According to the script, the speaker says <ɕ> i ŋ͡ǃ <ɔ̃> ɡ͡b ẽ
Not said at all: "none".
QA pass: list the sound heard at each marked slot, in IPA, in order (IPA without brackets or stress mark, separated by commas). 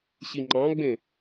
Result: ɕ, ɑ̃